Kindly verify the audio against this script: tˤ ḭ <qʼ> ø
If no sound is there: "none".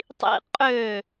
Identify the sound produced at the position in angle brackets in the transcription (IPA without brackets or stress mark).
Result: qʼ